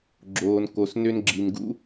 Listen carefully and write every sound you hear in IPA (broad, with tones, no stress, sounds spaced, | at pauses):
ɡ͡ǁ oː˨ n k o˨ s n ø˧ n ɡ͡ǁ i˨ n ɡ ṵ˧